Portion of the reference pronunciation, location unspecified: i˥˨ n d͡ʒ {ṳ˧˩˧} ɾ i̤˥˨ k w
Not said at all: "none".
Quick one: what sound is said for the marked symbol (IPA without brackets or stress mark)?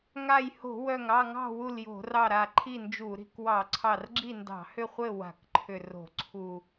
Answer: u˧˩˧